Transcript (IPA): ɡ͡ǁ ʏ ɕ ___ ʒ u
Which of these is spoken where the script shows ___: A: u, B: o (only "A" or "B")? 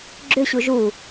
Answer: A